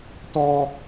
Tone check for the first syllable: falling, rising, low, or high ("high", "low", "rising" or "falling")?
high